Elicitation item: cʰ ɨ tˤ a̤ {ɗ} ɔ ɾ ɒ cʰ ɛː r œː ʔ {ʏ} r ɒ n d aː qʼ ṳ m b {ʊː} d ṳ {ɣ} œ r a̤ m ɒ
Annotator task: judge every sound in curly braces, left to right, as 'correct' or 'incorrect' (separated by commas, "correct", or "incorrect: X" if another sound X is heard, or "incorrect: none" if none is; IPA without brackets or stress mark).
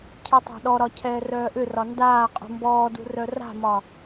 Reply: correct, correct, incorrect: ɔː, incorrect: r